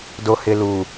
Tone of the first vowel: low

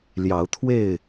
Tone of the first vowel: rising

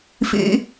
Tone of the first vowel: high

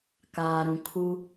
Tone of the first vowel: low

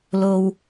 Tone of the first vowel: low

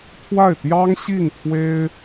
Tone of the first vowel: falling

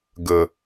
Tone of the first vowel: low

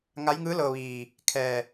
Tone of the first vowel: rising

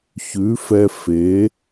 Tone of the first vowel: rising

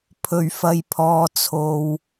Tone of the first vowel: low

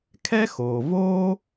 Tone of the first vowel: high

